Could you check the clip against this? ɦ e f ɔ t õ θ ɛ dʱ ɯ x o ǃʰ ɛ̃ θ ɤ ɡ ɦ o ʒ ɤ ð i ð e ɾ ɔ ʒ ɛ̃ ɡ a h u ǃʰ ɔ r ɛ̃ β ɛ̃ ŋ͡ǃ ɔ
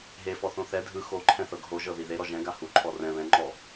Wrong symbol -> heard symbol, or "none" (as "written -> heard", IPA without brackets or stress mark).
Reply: t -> θ